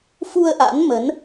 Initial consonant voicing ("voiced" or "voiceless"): voiceless